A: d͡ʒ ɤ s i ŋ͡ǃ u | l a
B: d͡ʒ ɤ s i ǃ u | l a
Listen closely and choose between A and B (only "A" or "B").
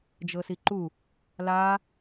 B